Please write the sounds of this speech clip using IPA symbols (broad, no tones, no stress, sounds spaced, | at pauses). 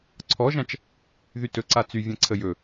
ǀʰ ɔ ʒ ã t͡ʃ | ð y t ɵ ǀ a t͡s y vʲ ã ǀʰ ə j ɵ